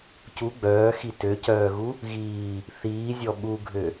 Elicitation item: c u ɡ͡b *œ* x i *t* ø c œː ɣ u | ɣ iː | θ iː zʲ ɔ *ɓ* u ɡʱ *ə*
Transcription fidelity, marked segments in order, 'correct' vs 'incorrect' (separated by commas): incorrect, correct, correct, incorrect